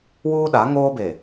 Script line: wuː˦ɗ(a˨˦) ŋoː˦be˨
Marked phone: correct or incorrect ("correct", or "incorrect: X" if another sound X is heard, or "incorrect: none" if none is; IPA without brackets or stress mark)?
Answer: correct